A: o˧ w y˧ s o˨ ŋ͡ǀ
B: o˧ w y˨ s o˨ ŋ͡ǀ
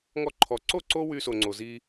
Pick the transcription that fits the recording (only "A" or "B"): A